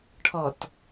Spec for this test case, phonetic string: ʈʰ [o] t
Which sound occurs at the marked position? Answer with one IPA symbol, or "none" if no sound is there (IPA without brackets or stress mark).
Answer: ɔ